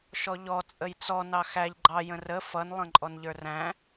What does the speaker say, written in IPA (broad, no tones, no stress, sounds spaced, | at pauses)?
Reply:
ʃ ɔ ʎ ɔ t͡sʼ ə j t͡s ɔ n ɑ x æ ʎ ɡ͡ǃ ɑ j ə̃ r ə f ʌ n lˠ ə̃ ǃʼ ɔ n ʎ ə˞ r æ̃